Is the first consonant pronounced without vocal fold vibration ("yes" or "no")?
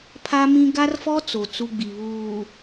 yes